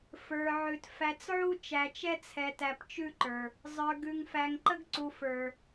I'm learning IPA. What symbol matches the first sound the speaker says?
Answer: f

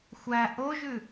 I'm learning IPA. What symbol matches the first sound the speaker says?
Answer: xʷ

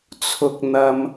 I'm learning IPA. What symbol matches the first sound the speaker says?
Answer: t͡sʰ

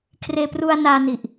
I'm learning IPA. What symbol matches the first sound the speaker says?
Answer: kʰ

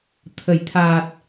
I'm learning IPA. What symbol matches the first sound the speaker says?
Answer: t̪ʰ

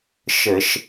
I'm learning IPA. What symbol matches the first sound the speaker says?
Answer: ʃ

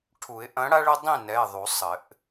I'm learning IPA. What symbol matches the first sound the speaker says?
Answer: ʈʰ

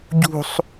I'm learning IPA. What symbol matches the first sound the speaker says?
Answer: ɟ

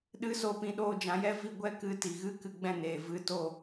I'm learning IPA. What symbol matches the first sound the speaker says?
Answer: ɗ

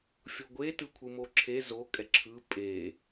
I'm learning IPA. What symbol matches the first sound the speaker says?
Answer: fʲ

